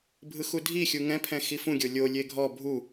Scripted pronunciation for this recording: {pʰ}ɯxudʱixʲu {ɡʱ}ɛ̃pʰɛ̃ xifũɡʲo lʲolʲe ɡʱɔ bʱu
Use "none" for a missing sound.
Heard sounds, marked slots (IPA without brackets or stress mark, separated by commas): bʱ, ŋ